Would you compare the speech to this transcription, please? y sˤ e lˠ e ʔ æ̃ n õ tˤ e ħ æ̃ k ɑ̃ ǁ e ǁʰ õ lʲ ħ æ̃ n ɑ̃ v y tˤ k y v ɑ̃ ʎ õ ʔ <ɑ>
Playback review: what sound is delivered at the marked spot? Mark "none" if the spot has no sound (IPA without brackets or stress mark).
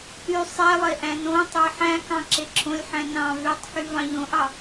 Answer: ɑ